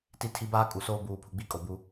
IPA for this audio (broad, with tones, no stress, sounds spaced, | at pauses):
t i˦ tʰ i˦ b aː˦ kʼ u˨ s oː˦ b uː˨ pʰ u˨ ɡ͡b i˦ kʼ o˨ b u˦